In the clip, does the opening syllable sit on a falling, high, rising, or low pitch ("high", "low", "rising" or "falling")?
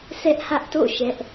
high